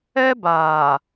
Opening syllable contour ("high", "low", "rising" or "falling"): high